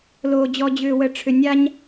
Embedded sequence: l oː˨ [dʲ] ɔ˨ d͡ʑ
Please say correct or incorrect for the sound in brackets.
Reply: incorrect